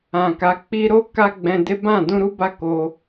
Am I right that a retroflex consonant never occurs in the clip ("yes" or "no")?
yes